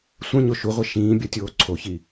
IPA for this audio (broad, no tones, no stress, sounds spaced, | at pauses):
sʷ ɐ̃ ɲ o ʃ u ʁʷ e ʃ ĩː bʲ ɐ tʲ oː ǀʰ o ç i